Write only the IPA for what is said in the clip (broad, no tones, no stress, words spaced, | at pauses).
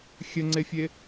xʲɘŋ͡ǀefʲe